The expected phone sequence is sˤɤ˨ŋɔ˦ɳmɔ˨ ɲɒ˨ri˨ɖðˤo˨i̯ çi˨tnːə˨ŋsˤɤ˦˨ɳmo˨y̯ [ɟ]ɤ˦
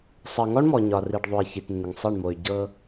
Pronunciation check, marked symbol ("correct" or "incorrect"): correct